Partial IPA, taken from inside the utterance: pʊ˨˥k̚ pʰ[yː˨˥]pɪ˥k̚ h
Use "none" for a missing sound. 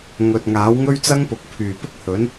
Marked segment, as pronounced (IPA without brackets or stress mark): yː˨˩